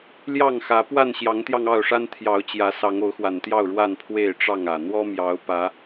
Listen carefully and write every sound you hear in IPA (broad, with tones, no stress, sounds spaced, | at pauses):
l j ɑ˥˨ ŋ x ä˨˦ p w a˥˨ n ɕ j ɑ˨˦ ŋ t̪ j ɑ˧ ŋ ɑ˥˨ ʊ̯ ʂ a˦ n t̪ʰ j ɑ˨˦ ʊ̯ t͡ɕ j ä˨˦ s ɑ˨˦ ŋ o˨˦ ʊ̯ x w a˨˩ n t̪ j ɑ˥˨ ʊ̯ ɻ w a˥˨ n pʰ w e˥˨ ɪ̯ ʈ͡ʂ ɑ˥˨ ŋ ä˨˩ n̪ w ɔ˦ m j ɑ˨˦ ʊ̯ p ä˨˦